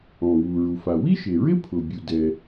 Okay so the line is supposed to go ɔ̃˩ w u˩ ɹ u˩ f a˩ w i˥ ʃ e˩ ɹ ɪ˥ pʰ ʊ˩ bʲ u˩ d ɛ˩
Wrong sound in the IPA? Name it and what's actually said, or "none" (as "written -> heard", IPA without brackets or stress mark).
none